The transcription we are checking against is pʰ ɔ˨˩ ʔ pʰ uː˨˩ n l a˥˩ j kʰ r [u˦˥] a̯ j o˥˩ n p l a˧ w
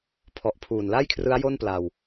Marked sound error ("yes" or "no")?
yes